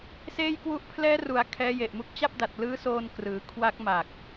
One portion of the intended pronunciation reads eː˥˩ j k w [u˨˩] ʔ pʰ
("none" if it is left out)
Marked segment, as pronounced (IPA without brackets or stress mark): u˥˩